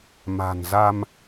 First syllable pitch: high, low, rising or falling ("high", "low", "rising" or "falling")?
low